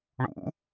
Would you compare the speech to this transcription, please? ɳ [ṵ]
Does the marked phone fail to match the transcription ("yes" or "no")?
no